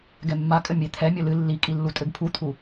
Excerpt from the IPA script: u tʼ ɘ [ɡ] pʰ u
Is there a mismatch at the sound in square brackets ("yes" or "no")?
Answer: no